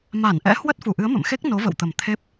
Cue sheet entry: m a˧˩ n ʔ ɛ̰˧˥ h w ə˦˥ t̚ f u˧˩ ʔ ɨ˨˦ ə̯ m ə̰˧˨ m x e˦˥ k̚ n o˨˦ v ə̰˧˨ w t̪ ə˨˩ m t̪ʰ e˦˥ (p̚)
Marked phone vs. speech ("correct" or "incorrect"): correct